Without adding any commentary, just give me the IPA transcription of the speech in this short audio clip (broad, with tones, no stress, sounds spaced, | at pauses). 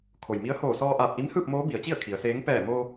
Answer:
kʰ o˩ j m i˧˥ ə̯ h oː˧˩ s ɔː˧ ʔ aː˧˩ p̚ ʔ i˧˥ m h ɯː˥˨ p̚ m oː˧˥ b i˩˧ ə̯ t͡ɕ i˥˨ ə̯ kʰ i˩˧ ə̯ s eː˧˥ ŋ p ɛː˧˩ m o˧